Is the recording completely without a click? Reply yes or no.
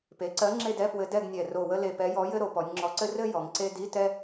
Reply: no